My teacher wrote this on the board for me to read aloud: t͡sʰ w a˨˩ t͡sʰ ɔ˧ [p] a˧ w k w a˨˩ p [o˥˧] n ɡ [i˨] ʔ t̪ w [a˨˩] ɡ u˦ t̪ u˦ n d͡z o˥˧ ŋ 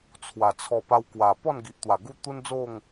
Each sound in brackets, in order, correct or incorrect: correct, incorrect: ɔ˥˧, correct, correct

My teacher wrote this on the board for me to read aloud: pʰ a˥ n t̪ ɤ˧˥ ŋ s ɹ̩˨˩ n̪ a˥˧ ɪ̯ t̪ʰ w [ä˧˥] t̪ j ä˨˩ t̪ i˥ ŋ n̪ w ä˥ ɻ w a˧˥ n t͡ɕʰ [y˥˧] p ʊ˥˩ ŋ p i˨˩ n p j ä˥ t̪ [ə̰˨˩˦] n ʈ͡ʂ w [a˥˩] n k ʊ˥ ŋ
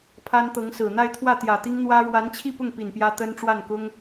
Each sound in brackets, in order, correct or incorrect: incorrect: ä˥˩, incorrect: i˥˧, incorrect: ə˥, correct

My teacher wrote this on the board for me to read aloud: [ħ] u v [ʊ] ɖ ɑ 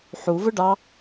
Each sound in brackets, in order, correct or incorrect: correct, correct

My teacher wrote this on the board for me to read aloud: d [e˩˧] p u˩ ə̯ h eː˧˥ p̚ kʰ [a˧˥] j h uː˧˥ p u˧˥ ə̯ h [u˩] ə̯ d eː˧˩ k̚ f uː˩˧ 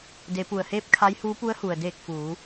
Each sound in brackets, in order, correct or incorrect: correct, correct, correct

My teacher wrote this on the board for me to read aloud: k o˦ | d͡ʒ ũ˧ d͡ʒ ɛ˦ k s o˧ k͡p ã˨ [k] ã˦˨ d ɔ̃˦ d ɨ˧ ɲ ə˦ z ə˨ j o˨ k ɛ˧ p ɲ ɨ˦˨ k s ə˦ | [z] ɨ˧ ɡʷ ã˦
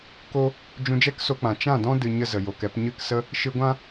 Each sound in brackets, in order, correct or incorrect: incorrect: t͡ʃ, incorrect: ʃ

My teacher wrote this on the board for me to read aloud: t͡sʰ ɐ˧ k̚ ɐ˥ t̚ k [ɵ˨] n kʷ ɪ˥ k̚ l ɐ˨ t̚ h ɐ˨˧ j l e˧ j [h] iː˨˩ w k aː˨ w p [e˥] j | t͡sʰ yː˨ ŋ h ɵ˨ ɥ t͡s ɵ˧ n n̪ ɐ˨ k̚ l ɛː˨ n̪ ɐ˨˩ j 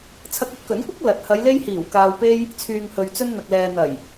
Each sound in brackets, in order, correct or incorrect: incorrect: ɵ˨˥, correct, incorrect: e˧

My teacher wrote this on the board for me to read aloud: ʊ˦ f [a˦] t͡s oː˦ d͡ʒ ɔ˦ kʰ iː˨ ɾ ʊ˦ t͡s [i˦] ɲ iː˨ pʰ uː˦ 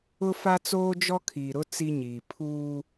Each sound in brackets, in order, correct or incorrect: correct, correct

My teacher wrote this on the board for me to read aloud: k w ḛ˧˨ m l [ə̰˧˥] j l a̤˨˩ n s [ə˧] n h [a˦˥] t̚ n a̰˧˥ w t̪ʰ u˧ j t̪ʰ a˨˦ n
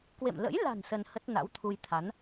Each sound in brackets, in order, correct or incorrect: correct, correct, incorrect: ə˦˥

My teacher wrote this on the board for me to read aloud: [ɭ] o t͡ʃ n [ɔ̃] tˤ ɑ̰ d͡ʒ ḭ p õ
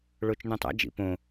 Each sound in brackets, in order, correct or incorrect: correct, correct

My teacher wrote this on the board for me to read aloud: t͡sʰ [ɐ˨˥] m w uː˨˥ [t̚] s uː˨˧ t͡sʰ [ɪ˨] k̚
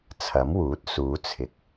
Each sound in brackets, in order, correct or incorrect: correct, correct, correct

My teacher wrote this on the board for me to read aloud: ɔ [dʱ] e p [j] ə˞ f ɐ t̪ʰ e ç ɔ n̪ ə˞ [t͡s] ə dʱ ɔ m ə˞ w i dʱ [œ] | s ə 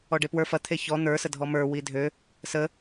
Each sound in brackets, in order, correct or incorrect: incorrect: ɖ, incorrect: w, incorrect: s, incorrect: ø

